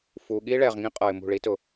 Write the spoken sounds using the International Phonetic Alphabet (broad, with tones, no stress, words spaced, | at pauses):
fuː˨ɠiː˦ɭɛː˨ʁŋĩ˦ qʼɤ˨ɪ̯mṳ˦˨ɭi˦ tʊ˦